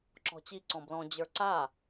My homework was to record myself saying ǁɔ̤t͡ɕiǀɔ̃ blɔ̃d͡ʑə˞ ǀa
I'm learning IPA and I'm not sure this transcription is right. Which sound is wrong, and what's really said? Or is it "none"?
none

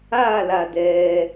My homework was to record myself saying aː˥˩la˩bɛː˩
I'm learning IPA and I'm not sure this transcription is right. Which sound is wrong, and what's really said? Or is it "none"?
b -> d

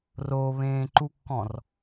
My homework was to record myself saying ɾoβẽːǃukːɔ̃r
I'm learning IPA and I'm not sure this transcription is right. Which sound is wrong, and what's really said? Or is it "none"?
ɾ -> r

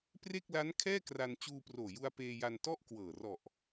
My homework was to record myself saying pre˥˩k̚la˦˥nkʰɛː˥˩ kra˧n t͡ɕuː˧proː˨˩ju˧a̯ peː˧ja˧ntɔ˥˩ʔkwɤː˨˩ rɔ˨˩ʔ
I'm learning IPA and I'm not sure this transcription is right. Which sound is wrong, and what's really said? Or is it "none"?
none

